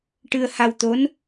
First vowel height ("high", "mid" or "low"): high